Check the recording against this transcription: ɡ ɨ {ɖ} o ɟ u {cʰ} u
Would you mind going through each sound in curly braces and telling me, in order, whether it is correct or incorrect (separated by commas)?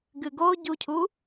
incorrect, correct